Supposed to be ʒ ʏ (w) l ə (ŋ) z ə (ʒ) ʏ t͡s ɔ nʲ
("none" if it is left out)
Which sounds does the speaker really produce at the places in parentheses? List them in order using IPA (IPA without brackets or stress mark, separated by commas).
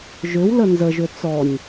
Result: w, n, ʒ